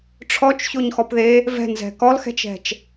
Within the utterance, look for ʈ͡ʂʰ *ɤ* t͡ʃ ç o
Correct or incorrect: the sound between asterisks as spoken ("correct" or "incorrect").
incorrect